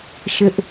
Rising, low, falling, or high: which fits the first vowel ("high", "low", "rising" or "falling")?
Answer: high